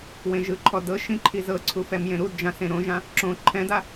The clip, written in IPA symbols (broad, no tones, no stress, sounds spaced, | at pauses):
w ẽ ʒ ɯ ǃʰ ɔ d ɤ ʃ ĩ ǃʰ i z ɤ ǀʰ u f ɛ m j ẽ ɾ u d d͡ʒ ã s ẽ ɾ õ ʒ ã | ǁ õ ǃʰ ɛ̃ d a